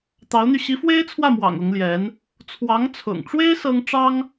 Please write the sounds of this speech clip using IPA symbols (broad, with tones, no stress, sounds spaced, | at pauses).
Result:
t̪ ɑ˧˥ ʊ̯ n̪ y˧ ɕ i˧˥ f w e˥ ɪ̯ t͡sʰ w ä˥˩ m w ɑ̰˨˩ ŋ ʊ˧˥ ŋ l j ɛ˧˥ n | t͡sʰ w ɑ˧˥ ŋ t͡sʰ ʊ̰˨˩ ŋ ʈ͡ʂ w e˥ ɪ̯ s ɤ˥ ŋ ʈ͡ʂ ɑ˥ ŋ